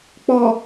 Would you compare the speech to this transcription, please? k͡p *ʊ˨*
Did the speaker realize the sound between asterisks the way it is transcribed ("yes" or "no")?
no